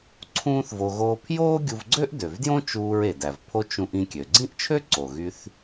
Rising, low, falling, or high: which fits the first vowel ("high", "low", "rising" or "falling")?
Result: high